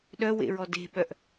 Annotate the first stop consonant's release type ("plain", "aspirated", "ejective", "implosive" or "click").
implosive